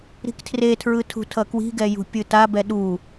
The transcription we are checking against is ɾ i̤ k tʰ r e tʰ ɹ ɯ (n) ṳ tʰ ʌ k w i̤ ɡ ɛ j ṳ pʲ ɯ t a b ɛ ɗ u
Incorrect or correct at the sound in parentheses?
incorrect: tʰ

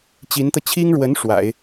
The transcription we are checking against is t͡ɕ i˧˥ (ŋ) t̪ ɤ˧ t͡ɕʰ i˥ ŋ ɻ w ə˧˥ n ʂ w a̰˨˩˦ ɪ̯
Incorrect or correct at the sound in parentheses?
incorrect: n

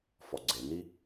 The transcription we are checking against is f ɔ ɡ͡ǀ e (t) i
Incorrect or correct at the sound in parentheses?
incorrect: n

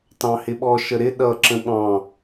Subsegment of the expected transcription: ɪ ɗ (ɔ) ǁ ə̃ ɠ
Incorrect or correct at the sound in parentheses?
incorrect: ʌ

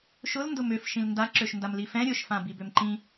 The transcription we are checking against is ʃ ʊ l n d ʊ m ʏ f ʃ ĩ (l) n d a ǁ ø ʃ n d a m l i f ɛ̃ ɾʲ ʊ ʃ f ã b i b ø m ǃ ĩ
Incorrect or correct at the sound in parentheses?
correct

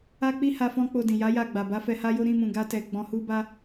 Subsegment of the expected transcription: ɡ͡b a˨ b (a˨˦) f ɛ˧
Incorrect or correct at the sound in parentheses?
correct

